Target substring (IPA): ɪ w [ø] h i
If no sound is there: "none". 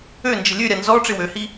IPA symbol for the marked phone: ø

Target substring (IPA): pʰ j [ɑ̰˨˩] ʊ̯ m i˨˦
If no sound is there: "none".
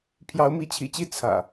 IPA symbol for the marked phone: ɑ˨˦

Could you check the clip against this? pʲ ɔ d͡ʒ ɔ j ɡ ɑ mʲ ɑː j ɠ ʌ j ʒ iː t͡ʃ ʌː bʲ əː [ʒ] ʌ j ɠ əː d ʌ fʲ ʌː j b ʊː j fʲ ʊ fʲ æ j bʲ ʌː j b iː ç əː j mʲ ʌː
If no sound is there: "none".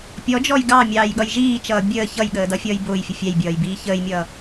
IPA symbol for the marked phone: ç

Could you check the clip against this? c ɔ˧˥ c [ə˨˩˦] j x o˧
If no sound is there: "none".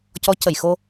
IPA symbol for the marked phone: ə˨˩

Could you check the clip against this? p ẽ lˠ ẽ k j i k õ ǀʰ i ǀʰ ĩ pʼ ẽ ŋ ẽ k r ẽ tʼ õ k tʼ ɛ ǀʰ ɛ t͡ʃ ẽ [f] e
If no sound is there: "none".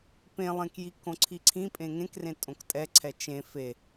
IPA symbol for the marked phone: f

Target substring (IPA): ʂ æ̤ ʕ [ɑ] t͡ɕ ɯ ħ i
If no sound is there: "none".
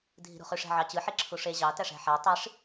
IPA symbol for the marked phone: ɑ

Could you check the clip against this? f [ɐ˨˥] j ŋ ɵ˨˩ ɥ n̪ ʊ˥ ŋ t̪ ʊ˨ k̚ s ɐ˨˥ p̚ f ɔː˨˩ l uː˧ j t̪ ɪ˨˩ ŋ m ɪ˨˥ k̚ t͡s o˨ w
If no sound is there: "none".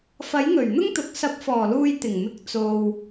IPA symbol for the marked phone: ɐ˨˥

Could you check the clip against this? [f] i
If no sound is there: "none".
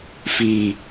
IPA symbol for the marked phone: f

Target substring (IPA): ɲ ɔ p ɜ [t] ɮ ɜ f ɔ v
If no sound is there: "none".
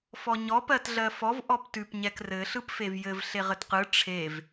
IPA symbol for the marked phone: t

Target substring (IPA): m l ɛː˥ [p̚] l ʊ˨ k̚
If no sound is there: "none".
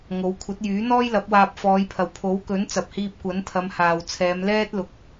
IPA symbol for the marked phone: t̚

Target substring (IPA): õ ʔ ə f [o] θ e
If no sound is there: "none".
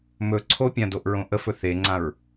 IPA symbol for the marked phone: ɵ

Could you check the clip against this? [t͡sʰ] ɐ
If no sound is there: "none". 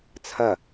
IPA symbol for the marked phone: t͡sʰ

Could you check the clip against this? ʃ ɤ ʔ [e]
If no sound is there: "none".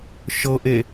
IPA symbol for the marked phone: e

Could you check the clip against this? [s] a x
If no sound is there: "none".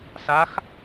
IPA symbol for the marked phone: s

